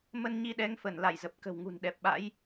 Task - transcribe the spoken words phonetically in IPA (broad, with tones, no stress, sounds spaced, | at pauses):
m ə˧ n ɲ i˧ ɗ ɛ˨˦ ŋ f ə˧˩ n l a˧˩ j z ə˨˩ p̚ k ə̤˨˩ w ŋ ṳ˨˩ n ɗ ɛ˨˩ p̚ ɓ a̰˧˥ j